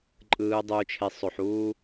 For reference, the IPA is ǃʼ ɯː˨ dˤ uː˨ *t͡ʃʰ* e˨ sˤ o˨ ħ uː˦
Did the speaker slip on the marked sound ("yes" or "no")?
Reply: no